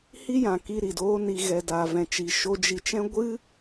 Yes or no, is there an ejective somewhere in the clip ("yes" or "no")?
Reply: no